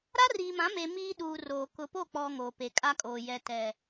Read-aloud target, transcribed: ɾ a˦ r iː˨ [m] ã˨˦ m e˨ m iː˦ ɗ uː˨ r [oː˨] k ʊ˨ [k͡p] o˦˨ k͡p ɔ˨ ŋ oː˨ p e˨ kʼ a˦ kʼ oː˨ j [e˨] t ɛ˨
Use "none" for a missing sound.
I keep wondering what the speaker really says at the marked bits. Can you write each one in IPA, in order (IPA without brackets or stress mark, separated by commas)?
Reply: m, oː˨, p, ɛ˨